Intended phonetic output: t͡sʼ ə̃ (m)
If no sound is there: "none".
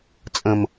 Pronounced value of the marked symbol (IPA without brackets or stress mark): m